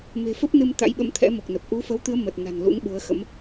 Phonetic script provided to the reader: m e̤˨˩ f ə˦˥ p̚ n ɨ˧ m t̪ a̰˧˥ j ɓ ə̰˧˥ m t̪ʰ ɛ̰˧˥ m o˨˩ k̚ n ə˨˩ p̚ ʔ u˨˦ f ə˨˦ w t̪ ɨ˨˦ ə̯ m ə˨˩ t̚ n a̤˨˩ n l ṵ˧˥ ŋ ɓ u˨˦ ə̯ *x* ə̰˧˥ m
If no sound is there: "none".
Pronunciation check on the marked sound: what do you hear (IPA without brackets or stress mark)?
x